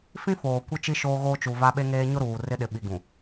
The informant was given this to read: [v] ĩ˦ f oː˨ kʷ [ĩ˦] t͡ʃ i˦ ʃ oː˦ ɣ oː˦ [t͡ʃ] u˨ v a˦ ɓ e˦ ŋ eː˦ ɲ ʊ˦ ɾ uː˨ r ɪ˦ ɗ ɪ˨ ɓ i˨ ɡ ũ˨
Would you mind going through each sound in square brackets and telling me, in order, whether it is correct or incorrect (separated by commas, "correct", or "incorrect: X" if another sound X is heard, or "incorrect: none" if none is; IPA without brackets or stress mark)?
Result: incorrect: f, incorrect: i˦, correct